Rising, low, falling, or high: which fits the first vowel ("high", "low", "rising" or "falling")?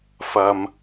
low